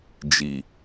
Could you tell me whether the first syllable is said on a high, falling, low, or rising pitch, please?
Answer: low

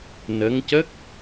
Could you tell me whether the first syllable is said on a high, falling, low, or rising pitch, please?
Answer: rising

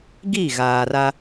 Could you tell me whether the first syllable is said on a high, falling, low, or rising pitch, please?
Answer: falling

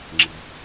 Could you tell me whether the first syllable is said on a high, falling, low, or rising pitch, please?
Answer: low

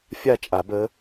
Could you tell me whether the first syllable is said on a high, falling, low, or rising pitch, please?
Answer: falling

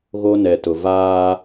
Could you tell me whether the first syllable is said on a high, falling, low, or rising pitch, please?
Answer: high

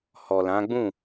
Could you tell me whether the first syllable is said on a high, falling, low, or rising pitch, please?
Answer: low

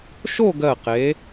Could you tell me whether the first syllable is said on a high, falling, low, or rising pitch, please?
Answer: falling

